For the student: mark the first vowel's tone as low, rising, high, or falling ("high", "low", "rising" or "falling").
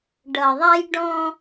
low